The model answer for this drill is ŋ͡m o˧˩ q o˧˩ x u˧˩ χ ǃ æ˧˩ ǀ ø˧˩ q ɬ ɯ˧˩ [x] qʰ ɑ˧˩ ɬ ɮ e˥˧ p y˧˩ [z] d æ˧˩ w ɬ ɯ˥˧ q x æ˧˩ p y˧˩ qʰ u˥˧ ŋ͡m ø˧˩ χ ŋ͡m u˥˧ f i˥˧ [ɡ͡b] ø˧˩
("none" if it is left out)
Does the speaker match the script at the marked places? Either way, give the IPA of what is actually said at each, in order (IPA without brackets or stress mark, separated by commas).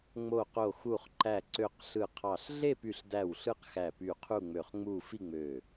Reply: none, ɬ, ŋ͡m